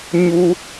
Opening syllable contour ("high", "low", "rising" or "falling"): high